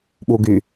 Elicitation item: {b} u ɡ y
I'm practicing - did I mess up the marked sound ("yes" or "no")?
yes